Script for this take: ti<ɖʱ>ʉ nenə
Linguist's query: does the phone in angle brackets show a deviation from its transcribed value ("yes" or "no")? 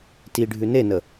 no